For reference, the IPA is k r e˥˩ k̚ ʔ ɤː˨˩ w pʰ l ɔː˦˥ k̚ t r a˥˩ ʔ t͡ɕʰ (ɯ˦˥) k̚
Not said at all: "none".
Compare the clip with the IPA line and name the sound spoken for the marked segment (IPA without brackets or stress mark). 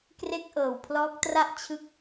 ɯ˦˥